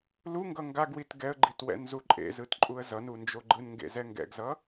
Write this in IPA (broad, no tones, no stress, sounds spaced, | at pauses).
l u ŋ ɡ ʌ ŋ ɡ a ɡ w i t ɡ ɛ ə̯ ɡ͡ǃ i t w ɛ̰ n z u ǃʼ ḛ z ɯ t ǃʼ u ə̯ z ʌ n u n d͡ʒ o ɡ͡ǃ ɯ n ŋ ɡ ḛ z ɛ ŋ ɡ ɛ̰ ɡ z ʌ